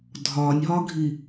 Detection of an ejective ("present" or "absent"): absent